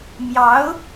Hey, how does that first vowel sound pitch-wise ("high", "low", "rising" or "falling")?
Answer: rising